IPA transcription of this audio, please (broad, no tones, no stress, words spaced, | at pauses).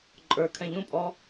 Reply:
ǃʼə˞kʰɛ̃ ʎũpʼɔ